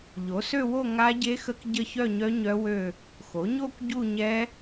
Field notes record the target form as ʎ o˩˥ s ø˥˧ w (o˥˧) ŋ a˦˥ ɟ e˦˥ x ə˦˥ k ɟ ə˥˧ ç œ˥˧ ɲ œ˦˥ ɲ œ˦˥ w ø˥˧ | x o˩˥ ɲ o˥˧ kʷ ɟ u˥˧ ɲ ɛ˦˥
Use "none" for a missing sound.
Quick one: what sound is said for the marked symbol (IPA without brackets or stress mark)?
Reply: o˥˧